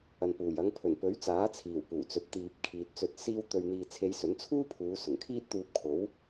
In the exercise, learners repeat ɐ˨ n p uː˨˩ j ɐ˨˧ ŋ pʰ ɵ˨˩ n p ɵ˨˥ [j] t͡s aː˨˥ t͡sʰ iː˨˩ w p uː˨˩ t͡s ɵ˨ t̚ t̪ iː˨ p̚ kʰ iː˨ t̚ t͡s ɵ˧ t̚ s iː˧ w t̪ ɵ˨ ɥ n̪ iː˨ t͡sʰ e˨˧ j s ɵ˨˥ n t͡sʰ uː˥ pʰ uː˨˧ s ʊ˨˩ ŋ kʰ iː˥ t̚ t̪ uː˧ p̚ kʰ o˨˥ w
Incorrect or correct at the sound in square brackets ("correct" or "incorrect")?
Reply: incorrect